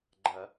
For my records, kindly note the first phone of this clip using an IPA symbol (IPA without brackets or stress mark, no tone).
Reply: ɡ͡ǃ